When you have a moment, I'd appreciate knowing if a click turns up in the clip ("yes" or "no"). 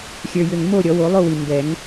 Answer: no